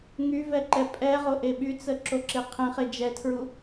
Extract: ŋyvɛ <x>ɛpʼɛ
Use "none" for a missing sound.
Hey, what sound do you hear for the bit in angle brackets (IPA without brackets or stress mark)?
ǃ